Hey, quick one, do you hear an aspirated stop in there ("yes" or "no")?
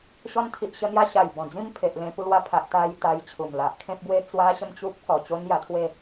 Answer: yes